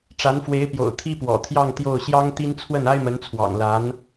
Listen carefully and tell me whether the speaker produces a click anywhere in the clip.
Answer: no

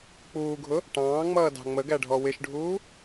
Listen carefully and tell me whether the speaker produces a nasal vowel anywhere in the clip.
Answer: yes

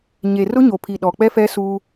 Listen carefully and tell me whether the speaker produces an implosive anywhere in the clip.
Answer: yes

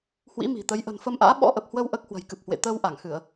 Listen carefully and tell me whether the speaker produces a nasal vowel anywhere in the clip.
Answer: no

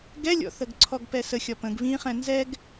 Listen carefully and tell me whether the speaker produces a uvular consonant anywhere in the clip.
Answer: yes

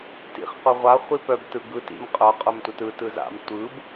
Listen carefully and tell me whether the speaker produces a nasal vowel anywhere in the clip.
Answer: no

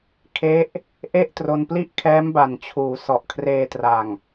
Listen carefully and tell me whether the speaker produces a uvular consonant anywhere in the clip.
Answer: no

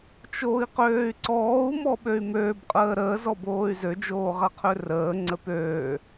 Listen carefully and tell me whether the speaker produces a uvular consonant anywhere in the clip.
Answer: yes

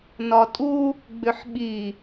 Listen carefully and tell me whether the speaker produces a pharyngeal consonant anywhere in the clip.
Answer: yes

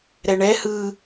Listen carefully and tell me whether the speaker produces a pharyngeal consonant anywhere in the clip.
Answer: no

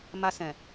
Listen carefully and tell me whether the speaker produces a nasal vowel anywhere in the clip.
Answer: yes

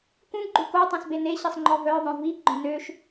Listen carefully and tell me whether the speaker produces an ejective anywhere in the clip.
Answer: no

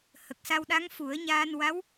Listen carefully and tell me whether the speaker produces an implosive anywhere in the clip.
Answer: yes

